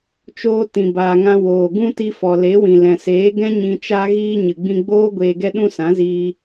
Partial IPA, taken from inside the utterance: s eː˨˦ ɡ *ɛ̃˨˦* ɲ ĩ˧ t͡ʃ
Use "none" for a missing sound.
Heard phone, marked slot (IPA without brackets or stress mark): ɛ̃˦